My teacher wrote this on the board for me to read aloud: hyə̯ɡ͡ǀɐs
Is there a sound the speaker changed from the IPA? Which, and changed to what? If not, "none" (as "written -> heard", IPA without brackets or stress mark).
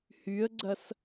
none